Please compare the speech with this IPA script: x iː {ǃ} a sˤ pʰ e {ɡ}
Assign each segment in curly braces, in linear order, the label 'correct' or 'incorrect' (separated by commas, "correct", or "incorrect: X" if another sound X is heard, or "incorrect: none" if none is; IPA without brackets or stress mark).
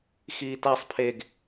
incorrect: t, correct